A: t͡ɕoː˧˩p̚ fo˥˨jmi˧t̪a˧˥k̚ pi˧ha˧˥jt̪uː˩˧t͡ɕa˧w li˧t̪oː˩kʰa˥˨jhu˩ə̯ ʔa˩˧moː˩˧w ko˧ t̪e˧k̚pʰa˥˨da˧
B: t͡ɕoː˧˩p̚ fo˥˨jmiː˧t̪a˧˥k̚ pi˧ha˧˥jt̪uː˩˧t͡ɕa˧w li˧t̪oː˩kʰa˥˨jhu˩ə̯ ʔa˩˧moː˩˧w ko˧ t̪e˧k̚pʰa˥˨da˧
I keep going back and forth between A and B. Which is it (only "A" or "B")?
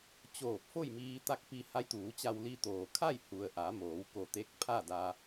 B